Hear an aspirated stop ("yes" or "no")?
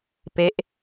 no